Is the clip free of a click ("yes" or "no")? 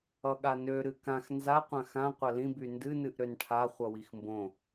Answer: yes